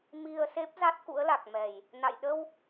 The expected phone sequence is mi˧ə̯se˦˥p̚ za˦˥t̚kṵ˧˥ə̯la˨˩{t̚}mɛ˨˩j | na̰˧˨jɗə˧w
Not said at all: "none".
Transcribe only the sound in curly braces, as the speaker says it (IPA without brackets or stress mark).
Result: k̚